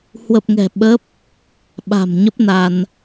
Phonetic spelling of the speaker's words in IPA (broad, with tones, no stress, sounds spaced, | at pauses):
h w ə˨˩ p̚ ŋ ɛ̤˨˩ ɓ ə˦˥ p̚ | ɓ a̤˨˩ m ɲ ə˦˥ p̚ n a˧ n